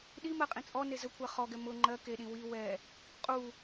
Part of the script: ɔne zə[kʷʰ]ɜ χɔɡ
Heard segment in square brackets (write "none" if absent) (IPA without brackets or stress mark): kʷʰ